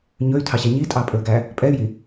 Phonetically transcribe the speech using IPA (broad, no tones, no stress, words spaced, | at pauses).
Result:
ɲɵy̯tʰɑɕæ ɲitʼɑpʼɵːɡæ | pʼɛy̯ji